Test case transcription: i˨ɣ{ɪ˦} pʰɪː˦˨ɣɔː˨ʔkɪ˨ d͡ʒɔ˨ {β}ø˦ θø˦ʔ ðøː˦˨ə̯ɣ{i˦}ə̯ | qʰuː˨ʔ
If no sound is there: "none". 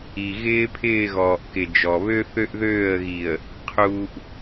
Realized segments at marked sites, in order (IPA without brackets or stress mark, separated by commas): ɪː˦, β, i˨